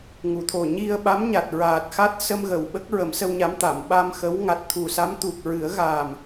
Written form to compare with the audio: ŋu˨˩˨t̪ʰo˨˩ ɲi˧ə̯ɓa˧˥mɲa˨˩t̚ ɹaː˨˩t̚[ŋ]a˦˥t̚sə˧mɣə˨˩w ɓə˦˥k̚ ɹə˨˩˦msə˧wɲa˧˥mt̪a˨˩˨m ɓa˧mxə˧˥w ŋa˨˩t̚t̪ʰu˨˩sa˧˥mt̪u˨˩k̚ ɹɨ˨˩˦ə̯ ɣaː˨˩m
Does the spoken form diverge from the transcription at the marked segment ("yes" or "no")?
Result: yes